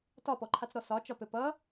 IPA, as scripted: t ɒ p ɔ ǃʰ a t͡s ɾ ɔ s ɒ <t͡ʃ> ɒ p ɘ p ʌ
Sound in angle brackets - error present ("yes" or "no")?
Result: no